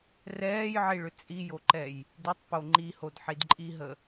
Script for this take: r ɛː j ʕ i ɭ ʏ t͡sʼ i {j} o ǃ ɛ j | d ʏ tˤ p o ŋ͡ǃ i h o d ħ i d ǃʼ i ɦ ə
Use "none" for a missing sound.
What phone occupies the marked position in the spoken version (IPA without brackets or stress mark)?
j